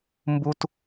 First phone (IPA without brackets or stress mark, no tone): m